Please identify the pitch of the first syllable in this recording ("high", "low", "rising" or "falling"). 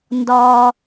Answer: high